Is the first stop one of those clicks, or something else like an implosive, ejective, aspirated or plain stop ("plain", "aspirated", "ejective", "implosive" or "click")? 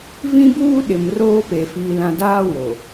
plain